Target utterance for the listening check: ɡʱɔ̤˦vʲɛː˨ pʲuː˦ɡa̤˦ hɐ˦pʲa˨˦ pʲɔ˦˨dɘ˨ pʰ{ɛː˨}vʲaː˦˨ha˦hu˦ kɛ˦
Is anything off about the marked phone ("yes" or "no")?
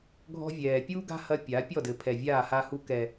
yes